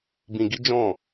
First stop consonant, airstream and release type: plain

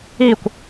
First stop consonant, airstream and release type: plain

